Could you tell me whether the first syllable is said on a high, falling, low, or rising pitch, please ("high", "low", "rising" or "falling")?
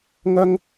high